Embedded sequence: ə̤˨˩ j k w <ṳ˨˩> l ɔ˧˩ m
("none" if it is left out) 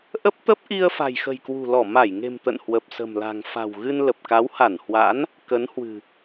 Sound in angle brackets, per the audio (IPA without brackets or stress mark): ṳ˨˩